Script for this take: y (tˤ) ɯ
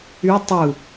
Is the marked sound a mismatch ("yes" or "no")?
no